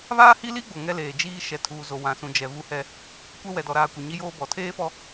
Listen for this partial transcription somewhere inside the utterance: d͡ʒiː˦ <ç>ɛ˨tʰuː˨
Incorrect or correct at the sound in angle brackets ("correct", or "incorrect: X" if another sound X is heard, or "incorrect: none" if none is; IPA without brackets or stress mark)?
incorrect: ʃ